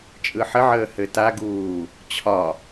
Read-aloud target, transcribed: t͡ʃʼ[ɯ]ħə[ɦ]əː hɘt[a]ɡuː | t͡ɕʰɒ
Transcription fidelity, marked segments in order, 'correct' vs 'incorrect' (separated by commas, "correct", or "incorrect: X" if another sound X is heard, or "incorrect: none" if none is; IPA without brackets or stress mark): correct, incorrect: ʕ, correct